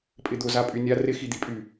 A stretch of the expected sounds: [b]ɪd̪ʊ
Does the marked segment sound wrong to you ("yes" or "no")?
yes